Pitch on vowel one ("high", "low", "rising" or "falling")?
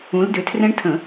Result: rising